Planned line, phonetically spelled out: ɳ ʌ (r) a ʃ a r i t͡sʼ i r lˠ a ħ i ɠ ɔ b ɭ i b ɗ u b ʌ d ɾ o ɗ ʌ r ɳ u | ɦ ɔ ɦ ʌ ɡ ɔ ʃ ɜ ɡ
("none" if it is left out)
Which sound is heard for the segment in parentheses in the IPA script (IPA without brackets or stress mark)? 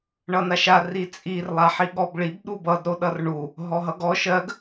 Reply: n